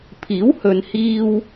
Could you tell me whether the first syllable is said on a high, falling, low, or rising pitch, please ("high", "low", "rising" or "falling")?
rising